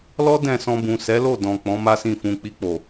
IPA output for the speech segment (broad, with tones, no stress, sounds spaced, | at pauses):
l ɔ˦ d ɛ̃˦˨ s ɔ̃˧ b ũ˨ s ɛ˨˦ l o˦˨ d ɔ̃˨ k͡p ɔ̃˨˦ m a˦ s ĩ˦˨ f ũ˧ k͡p i˧ k͡p o˨